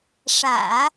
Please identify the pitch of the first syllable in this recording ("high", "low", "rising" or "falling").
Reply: low